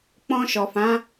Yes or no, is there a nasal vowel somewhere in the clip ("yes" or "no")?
yes